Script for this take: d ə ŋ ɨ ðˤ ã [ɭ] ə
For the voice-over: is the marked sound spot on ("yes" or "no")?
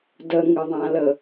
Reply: no